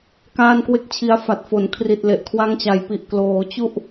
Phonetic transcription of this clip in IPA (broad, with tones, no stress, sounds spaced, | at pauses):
k aː˥˩ n k w e˥˩ k̚ t͡ɕʰ i˧ a̯ f a˨˩ t̚ f o˩˦ n kʰ r i˨˩ t̚ l e˨˩ ʔ kʰ w a˧ ŋ t͡ɕ a˩˦ j p i˨˩ ʔ k l oː˩˦ t͡ɕ u˥˩ ʔ